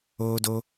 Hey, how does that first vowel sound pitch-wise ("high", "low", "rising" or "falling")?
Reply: high